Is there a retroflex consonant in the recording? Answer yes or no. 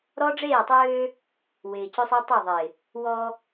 yes